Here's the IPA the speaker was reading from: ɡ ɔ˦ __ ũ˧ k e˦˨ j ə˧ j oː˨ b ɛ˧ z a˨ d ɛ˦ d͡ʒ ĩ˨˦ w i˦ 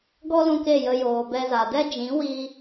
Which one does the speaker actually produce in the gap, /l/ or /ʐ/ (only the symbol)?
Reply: l